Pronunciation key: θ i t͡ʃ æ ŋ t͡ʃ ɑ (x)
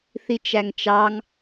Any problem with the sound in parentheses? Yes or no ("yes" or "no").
yes